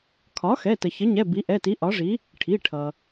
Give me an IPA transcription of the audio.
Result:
kʰ ɒ˩˥ x ɛ˩˧˩ t ə˩ ç ə˩˥ ɲ ɛ˩˧˩ b i˩˥ ʔ ɛ˩˧˩ t i˩˥ ʔ ɒ˩˥ ʐ i˩˥ | ʈʰ i˩˧˩ ʈʰ ʌ˩

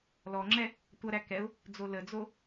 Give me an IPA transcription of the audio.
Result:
l ɔ ŋ͡ǁ ɛ | tʷ ʌ ɾ æ k ɛ ʊ̯ | d͡z o l ə d͡z o

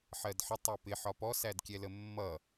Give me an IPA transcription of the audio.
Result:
ħ ɜ d ħ ə tˤ ɜ p ɪ ħ ɒ p ɔ s æ d kʲ ɛ l ə mː ʌ

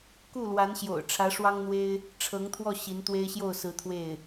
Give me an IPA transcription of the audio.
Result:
k u˥˩ l w a˧˥ n ɕ j o̰˨˩ ʊ̯ ʈ͡ʂʰ ä˧˥ ʂ w ɑ˥ ŋ n̪ w e˥ ɪ̯ | ʈ͡ʂʰ ɤ˧˥ ŋ t̪ʰ w ɔ˥˩ ɕ i˧˥ n t̪ w e˥ ɪ̯ ɕ j o˥˩ ʊ̯ s ɹ̩˧˥ t̪ʰ w e˥˩ ɪ̯

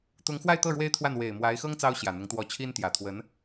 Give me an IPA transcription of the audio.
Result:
t̪ ʊ˧˥ ŋ x w a˥˧ ɪ̯ t̪ ɤ˥˩ ɻ w e˥ ɪ̯ t̪ʰ w a˥˩ n w e˨˩ ɪ̯ m w a˧˥ ɪ̯ x ɤ˥ ŋ t͡s ɑ˥ ʊ̯ ɕ j ä˨˩ n̪ ʊ˧˥ ŋ t̪ w ɔ˧˥ t͡ɕʰ i˥ n t̪ j ä˨˩ t̪ʰ w ə˧˥ n

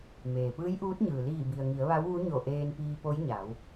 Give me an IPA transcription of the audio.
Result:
m eː˩ p ɯː˧˥ j ʔ uː˧˥ t̚ ɲ ɯː˩ l iː˧˩ b i˩ ə̯ ŋ i˩˧ ə̯ ʋ a˧˥ w ʋ u˧˥ ɲ o˧˩ ʔ eː˧ n p iː˧ p o˧˥ j ɲ a˩˧ w

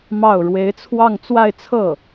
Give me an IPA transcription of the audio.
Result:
m ɑ˥˩ ʊ̯ ɻ w e˧˥ ɪ̯ t͡sʰ w ɑ˥˧ ŋ t͡s w a˥˧ ɪ̯ t͡sʰ ɤ˥˩

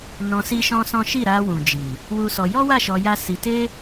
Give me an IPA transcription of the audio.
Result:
n ɔ̃˧ s i˦ ʃ ɔ̃˦ s ɔ̃˦ ʃ i˦˨ ɾ a˧ w ũ˨ d͡ʒ i˨ | w u˦ s ɔ˧ j ɔ˦ w a˦˨ ʃ ɔ˧ j a˦ s i˧ t e˦

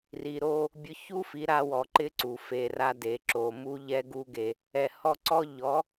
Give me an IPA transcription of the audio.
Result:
r i˨ ɾ o˧ | bʲ ʊ˧ ç u˦ f i˨˦ ɾ a˧ w ɔ˨ ǃ ɪ˦ ǀ u˨ f e˨ r a˦ d e˨ ǁ o˨ m u˦ ʎ ɛ˦ ɡ u˦ ɡ e˧ | ɛ˨ h ɔ˧ ǀ ɔ˦ ʎ ɔ˨˦

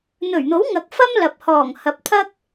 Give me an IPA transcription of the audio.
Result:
n̪ ɵ˨˩ ɥ n̪ o˨˥ w ŋ ɐ˨˥ k̚ f ɐ˥ m l ɐ˨ p̚ h ɔː˨˩ ŋ h ɐ˨˥ p̚ t̪ʰ ɐ˥ k̚

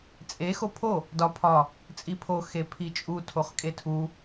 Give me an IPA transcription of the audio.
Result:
t͡sʼ e x o pʰ o | d ɒ pʰ ɒ | t͡sʼ i pʰ o x e pʰ i t͡ʃʼ u tʰ o χ kʼ e tʰ u

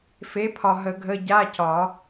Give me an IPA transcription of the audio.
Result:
f e˨˥ pʰ ɒ˨ ɦ ə˨˩˦ ɡʱ ə˧˥˧ ɟ a˧˥˧ c ɒ˨˩˦

